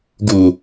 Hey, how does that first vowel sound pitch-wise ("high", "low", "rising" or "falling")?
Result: low